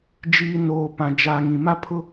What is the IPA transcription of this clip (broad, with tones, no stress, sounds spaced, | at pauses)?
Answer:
d͡ʒ iː˨ n oː˨ p ã˨ d͡ʒ a˨ ŋ ĩ˨ m a˦ pʰ ʊ˦